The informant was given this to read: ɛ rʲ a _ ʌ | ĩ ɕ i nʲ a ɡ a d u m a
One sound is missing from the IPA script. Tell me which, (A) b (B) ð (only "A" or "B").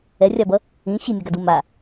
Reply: A